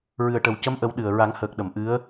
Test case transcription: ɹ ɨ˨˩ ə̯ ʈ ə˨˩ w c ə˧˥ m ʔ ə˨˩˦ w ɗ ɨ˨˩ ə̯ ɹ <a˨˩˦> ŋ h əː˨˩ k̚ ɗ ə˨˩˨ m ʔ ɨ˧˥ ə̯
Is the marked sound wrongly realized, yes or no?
no